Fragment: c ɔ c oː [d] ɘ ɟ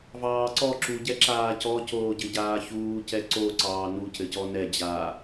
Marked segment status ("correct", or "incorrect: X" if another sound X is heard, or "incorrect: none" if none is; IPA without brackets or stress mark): incorrect: ɟ